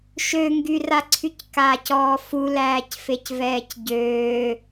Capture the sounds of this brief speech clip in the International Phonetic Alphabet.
ʃøŋɡyraǀʰyc kaːcɔːfu læːcfecvɛːcɟøː

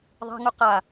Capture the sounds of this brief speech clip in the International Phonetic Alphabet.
ðˤa̤ŋu qa

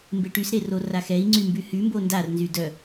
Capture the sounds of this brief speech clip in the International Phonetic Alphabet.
mbeʈysɾero raxɛi̯ŋ͡ǀy mbyhymbo ndar nzydœ

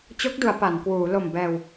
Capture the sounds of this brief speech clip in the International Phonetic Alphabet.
t͡ɕo˦˥k̚du˩˦a̯ pa˩˦nkwuː˩˦ lo˨˩m bɛː˨˩w

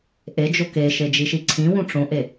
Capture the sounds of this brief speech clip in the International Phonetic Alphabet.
ʔed͡ʒo keʃe d͡ʒiʃiǀʰĩwũ ʈ͡ʂõʔe

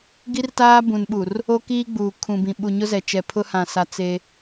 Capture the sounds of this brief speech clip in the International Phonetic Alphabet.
ɡi˦rtaː˦bũ˨nɓu˨r | o˦kiː˦ɡ͡buː˨ kʰũ˨bĩ˨ ɓu˨ɲʊ˦zɛ˨t͡ʃɛ˨ pʰʊ˦ hã˨sa˨ t͡se˦

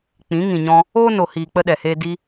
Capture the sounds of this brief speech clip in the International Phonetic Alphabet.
k͡pĩ˨˦ŋĩ˨ɲɔ̃˧ | oː˦ no˨hiː˨ k͡pə˦ɗɛ˨heː˦ di˧

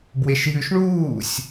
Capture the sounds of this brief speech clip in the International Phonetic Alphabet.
bweʃjʉʃɳuːsʲ

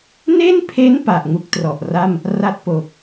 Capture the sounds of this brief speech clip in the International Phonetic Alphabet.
ne˥˩npʰe˦˥n pa˨˩ʔŋu˦˥k̚trɔ˨˩ʔ ra˥˩m | ra˥˩t̚ po˨˩k̚

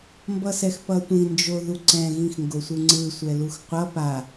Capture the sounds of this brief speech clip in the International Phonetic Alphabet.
mbʌsɛxpʌtʷĩ nd͡ʒoðuǀɛ̃ ɣĩxŋɡosʷɯŋ͡ǀɯ sʷɛluxqʷʌ pa

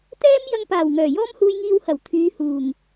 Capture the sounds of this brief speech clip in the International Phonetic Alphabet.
t̪ɛː˥m jɐ˧ŋpaː˨˩w ŋœː˨˩jɔː˥mhuː˧jŋiː˧w hɐ˨˩w t̪ʰyː˨˧ huː˨˩ŋ

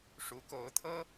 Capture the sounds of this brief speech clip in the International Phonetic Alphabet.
ʂu˧˥ko˧˥ʊ̯t̪ʰɤ˥

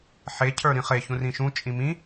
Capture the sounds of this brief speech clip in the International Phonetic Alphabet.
ħe cʰə˞ɾĩχe çũrĩʃũ t͡ʃʼĩmĩ

